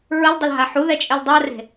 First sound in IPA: ɹ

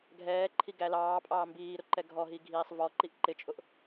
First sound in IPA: ɡʱ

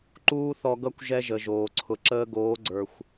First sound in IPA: ǃ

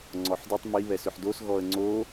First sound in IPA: ŋ͡ǀ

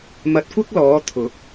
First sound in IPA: m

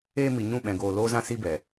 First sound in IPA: eː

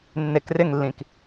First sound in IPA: nː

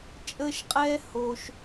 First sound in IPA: t͡ʃʼ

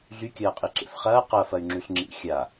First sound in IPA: ɮ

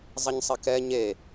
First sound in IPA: zˤ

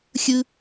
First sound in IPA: xʲ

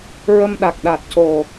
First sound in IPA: ɹ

